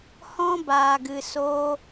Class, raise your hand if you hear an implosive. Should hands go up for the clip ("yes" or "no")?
no